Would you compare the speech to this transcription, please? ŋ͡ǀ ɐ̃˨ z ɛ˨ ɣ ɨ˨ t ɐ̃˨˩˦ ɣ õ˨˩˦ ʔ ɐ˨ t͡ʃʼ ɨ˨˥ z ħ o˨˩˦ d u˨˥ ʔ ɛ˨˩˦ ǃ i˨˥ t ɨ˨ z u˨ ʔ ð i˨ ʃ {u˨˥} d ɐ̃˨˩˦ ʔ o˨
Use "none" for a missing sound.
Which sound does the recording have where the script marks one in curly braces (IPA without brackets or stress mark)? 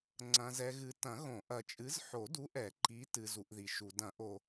u˨